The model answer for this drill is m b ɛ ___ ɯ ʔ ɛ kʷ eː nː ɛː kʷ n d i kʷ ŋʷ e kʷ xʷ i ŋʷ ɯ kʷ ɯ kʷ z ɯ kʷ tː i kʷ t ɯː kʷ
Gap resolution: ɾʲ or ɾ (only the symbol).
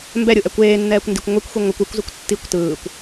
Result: ɾʲ